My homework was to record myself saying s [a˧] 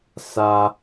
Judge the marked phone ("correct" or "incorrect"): correct